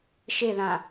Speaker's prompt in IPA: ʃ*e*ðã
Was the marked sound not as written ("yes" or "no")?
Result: no